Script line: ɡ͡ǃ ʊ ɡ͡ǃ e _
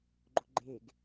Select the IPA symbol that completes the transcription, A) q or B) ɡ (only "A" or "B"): B